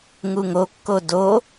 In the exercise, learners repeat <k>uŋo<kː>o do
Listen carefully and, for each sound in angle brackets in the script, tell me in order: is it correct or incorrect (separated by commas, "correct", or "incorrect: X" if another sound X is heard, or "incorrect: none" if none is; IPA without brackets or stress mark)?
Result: incorrect: ŋ, correct